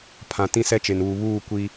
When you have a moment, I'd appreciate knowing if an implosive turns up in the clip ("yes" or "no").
no